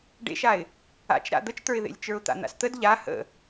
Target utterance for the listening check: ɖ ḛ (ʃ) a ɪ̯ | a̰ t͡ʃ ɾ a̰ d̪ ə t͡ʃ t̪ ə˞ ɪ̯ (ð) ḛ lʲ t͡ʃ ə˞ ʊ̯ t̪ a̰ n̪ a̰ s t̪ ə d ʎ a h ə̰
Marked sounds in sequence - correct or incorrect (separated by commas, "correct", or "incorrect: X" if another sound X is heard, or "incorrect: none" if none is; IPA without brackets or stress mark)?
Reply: correct, correct